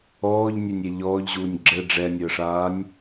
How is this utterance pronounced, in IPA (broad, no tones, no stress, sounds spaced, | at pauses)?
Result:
ɔː ʎ nʲ ɛ nʲ ɛ ʎ ɔː ʎ ʑ uː nʲ ɡ͡ǁ ɘ ɖ͡ʐ ɛ nʲ əː ʂ aː nʲ